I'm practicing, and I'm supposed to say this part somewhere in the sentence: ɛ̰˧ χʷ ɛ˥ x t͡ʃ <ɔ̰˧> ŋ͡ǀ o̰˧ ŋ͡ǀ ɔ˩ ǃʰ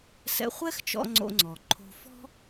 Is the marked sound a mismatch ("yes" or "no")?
no